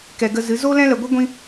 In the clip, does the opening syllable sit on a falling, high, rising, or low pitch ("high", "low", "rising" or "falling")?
low